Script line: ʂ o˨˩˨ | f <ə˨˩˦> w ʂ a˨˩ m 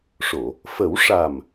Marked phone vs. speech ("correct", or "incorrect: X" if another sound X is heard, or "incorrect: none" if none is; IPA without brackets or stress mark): correct